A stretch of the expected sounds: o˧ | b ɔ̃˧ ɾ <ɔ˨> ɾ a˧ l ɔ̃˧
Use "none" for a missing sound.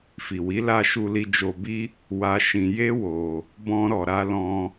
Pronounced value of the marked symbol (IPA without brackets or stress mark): ɔ˨